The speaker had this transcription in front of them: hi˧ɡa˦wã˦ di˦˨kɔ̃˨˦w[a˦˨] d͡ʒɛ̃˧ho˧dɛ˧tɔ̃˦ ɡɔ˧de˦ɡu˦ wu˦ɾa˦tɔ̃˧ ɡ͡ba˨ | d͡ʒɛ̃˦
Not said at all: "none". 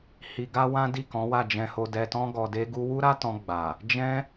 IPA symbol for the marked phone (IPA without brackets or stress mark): a˦˨